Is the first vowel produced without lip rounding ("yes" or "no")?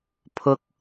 no